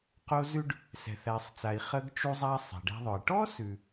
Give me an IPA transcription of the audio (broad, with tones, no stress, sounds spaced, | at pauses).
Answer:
q o˧ z ʉ˧ ɖ | s ɛ̤˩ θ æ˩ sˤ t͡s a˩ i̯ χ ə˧ ɡ t͡ʃ u˧ zˤ a˧ sˤ ɛ̤˩ ɖ ɛ̤˧ ðˤ œ˩ i̯ ʈ ɔ˥ s ʉ˩